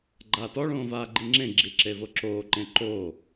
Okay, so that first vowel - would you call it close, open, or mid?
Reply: open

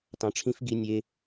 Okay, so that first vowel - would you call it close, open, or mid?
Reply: open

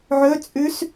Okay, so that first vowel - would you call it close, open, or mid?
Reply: mid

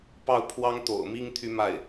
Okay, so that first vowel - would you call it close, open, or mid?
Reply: open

